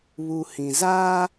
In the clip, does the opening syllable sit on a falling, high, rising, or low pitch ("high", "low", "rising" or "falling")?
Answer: low